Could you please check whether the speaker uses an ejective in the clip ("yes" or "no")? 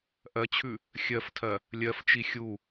no